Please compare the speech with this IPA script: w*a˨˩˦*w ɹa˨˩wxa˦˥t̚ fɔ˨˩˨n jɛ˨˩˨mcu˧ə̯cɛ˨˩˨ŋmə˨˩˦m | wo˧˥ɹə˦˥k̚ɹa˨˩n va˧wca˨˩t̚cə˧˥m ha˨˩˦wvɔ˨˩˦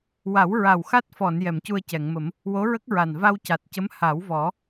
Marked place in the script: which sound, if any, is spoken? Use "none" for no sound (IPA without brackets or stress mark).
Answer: a˨˩˦